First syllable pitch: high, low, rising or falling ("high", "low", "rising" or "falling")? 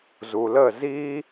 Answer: low